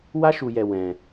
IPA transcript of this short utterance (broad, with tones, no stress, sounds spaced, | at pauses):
w a˦ ʃ u˧ j ɛ˧ w ɛ̃˧